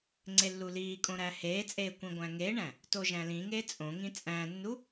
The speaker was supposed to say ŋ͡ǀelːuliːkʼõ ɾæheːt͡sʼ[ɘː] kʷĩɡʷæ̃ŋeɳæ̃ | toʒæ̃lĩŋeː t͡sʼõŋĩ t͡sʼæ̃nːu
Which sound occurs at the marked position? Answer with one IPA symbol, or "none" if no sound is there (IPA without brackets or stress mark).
eː